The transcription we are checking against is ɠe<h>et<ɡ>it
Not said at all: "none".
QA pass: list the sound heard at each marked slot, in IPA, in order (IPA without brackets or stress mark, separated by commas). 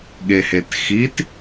h, x